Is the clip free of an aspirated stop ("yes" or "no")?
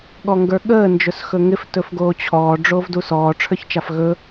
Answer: no